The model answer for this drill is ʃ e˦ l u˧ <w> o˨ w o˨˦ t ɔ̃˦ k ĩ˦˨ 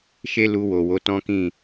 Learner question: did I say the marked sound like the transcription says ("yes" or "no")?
yes